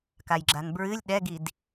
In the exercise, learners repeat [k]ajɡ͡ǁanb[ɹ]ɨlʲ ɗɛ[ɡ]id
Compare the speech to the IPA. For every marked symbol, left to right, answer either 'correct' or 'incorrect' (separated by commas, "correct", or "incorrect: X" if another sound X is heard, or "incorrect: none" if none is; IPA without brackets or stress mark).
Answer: correct, correct, correct